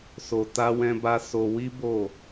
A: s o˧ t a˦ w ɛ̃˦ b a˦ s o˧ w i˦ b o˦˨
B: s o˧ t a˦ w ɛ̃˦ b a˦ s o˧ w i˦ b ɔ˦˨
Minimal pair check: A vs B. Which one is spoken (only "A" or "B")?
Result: A